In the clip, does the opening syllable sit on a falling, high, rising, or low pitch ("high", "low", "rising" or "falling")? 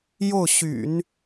falling